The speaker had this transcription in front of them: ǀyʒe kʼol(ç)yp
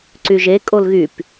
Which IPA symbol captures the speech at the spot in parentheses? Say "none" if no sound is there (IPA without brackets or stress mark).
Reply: ɣ